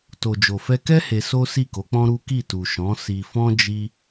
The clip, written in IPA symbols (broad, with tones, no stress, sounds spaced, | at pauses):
t o˨ d͡ʒ o˨ f ɛ˧ k ɛ˦ h e˧ s o˦ s i˦˨ k o˨˦ k͡p ɔ̃˦ ɾ u˦ k i˦˨ t u˨ ʃ ɔ̃˨˦ s i˧ f ɔ̃˦ d͡ʒ i˦